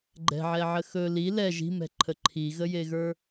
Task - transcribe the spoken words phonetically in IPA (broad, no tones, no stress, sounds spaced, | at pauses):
ɡ͡ǃ ɛ̤ ʕ ɛ ʕ ə x ɵ l i l ɛ ʒ i̤ m ɛ̤ ǃʰ ə ǃʰ i ɣ ə j e ɣ ə˞